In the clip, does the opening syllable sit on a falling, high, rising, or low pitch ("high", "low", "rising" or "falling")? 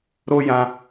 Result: high